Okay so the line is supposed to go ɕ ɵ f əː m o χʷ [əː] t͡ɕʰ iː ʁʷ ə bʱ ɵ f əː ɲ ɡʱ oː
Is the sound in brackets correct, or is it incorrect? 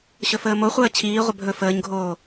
correct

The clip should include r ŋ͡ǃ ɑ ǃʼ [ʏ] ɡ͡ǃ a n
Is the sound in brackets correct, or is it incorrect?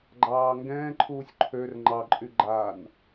incorrect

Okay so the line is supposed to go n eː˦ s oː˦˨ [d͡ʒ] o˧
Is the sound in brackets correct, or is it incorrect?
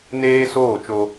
incorrect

